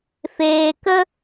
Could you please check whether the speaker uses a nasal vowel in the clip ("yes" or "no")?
no